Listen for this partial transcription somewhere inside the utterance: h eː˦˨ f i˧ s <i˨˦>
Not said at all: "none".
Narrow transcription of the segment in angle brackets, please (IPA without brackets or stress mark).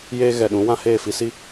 i˦